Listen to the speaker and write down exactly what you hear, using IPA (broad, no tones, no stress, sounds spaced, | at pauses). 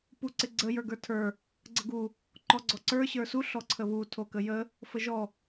p u ǀ ɪ ɡ͡ǀ ə j ə˞ ɡ ə˞ tʰ ə˞ | ɡ͡ǀ ə ɡ u | ǃ ɔ ɡ͡ǀ ɔ ǀ ə˞ ɕ ə˞ s u ɬ ɔ ǀʰ ə β u tʰ o k ə j ə | f ə ʒ ɔ